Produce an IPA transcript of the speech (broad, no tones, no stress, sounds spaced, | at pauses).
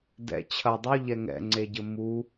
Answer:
d ɛ̰ t͡ɕʰ ɐ dˤ u ʎ ɛ ŋ ɛ̰ ŋ͡ǀ e ɟ ɘ m u